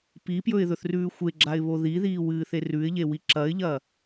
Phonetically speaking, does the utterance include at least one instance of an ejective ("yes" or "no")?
no